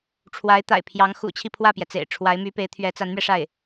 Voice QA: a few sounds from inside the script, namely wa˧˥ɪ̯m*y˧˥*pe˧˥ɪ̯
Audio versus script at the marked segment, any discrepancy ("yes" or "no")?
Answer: no